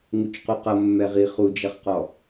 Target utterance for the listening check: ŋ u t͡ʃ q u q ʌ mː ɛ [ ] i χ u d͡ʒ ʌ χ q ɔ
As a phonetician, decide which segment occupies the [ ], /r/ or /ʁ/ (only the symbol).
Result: ʁ